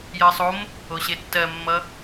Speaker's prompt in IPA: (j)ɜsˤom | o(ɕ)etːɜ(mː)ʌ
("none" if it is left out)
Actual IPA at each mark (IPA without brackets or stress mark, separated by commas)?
j, ɕ, mː